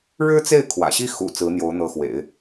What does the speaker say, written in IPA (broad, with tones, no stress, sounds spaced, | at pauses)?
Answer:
ɻ ɻ̩˥ t͡s e˥˩ ɪ̯ kʰ w ä̰˨˩ ɕ i˥ x ṵ˨˩ t͡s ɹ̩˧˥ n̪ j o˧˥ ʊ̯ n̪ ɤ˧˥ x w ḛ˨˩˦ ɪ̯